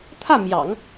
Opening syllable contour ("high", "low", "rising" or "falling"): falling